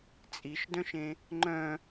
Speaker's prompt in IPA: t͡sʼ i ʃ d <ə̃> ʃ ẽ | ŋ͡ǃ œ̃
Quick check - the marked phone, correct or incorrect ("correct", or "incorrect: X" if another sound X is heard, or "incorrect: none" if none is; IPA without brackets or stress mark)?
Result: incorrect: œ̃